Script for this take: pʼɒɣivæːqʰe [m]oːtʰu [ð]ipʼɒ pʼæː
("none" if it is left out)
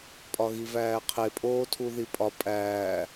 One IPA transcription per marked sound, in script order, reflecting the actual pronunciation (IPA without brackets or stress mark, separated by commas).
pʼ, ð